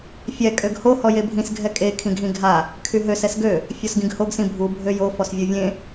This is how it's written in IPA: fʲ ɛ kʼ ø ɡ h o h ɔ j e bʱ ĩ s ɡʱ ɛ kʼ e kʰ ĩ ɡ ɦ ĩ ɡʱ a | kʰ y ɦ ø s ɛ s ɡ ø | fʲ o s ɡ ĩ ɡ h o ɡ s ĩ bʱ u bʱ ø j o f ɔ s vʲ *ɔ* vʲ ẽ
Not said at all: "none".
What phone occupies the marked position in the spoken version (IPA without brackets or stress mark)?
o